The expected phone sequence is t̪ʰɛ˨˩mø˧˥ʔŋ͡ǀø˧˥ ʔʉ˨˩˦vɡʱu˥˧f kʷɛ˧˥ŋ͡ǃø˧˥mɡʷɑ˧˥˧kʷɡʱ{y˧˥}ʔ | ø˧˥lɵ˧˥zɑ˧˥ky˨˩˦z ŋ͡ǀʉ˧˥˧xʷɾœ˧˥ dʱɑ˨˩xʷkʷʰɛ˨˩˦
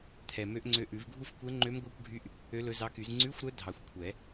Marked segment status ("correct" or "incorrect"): correct